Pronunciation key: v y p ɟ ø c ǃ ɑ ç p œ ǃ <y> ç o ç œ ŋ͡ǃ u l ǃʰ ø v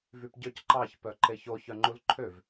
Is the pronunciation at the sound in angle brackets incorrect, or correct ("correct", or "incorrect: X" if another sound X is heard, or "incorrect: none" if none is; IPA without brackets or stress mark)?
incorrect: e